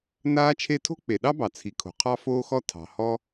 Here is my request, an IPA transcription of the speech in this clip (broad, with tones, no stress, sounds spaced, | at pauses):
n aː˥ t͡ʃʰ e˥ tʰ o̤˥ k͡p e˩ ɗ ɑ˥ b ɑ˩ t͡sʰ i˩ kʰ o̤˩ qʰ ɑ˥ f oː˥ x ɔ˥ tʰ ɑ̤˩ h ɔ˥